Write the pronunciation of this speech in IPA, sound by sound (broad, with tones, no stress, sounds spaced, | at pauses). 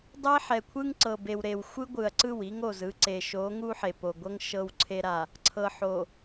dˤ e˦ ħ ɛ˨ kʷʰ ɯ˦ ŋ ǀ ɤ˨ b e˨ w ɾ e˨ w xʷ ɯ˦ ɡʷ ɯ˨ ɐ̯ ǀ ɯ˦˨ w i˦ ŋ o˨ z ɯ˦ ǀ e˨ ʃ o˨˦ ŋ u˦ ħ e˨ p o˨ ɡʷ ɤ˦ ŋ ʃ ɤ˨ w ǀʰ e˨ ɾ a˨ | ǀʰ ɤ˨ ħ o˨